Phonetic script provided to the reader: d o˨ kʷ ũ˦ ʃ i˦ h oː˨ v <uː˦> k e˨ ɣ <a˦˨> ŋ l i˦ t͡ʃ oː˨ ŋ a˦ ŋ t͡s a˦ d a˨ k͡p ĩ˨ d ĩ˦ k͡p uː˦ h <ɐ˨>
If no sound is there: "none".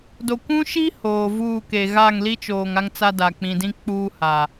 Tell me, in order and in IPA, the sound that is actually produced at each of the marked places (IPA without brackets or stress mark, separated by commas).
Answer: uː˦˨, a˦˨, a˨